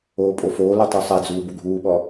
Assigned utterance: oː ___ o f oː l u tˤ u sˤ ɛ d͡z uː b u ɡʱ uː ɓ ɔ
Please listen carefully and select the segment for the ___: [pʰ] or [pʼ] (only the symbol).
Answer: pʼ